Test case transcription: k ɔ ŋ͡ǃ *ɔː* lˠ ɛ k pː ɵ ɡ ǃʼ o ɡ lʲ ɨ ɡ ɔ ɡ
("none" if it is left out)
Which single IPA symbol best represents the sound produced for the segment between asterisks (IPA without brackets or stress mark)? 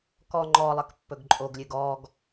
ɔ